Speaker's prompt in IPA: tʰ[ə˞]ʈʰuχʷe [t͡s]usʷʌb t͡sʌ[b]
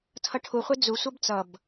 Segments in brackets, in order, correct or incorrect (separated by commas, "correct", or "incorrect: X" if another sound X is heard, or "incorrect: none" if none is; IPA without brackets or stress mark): incorrect: ʌ, incorrect: d͡z, correct